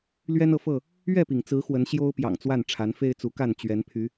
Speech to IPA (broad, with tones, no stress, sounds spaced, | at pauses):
l ɥ ɛ˦ n ɤ˨ f ɤ˥˨ | ɥ ɛ˥˨ p i˩ ŋ t͡s ɹ̩˨˦ x w ə˨˦ n ɕ j o˦ ʊ̯ p j ɑ̰˨˩ ŋ t͡s w a˥˨ n ʈ͡ʂʰ a˨˦ n f e˦ ɪ̯ t͡s u˨˦ k a˥˨ n t͡ɕ ɥ ɛ˨˦ n pʰ y˨˦